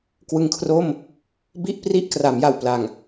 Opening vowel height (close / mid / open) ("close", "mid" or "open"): close